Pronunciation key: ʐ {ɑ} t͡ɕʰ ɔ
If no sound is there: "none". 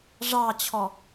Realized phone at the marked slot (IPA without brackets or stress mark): ɑ